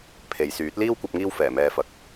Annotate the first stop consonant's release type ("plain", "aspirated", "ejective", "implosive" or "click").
aspirated